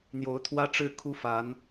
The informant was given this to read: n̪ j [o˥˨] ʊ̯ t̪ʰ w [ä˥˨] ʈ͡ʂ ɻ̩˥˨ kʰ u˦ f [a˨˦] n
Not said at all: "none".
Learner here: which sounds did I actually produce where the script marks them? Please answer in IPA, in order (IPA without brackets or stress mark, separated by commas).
o˨˦, ä˦, a˨˦